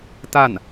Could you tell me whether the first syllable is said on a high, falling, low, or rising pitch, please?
falling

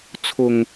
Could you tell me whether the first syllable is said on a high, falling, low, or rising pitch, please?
low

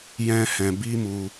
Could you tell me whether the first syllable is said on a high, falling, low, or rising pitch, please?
high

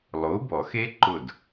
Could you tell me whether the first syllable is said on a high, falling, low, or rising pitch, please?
rising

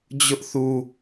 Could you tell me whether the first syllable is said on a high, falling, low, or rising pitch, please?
high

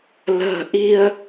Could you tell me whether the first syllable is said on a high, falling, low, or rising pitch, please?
low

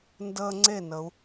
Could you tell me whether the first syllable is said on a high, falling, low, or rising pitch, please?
high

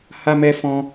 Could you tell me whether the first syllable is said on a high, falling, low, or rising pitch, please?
high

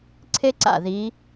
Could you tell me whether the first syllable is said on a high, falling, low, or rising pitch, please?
high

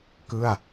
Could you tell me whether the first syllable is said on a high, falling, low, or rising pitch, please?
falling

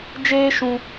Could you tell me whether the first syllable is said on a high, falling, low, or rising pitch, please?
high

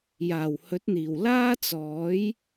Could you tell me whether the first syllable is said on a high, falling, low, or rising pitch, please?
low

